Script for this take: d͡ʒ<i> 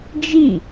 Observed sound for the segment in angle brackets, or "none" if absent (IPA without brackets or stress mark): i